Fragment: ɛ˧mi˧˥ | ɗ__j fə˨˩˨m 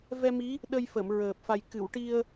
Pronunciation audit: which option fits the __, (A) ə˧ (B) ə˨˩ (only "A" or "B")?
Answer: A